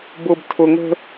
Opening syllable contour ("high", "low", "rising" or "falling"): high